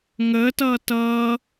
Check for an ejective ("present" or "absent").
absent